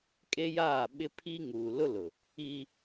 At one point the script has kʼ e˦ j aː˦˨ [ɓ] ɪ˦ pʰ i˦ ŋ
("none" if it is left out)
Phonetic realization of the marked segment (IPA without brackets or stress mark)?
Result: ɓ